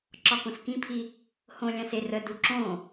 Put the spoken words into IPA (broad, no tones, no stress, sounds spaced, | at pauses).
ǁ ɒ k õ s k ĩ pʰ i | h õ lʲ ã s e r ə d u ǁ õ